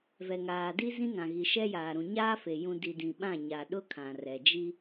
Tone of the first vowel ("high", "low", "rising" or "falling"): low